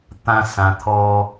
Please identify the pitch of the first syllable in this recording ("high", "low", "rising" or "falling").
high